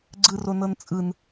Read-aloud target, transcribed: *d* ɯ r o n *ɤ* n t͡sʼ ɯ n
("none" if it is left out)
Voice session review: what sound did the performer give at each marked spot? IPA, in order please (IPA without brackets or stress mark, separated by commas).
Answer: ɡ͡ǀ, ɤ